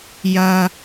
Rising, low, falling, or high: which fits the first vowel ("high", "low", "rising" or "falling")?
high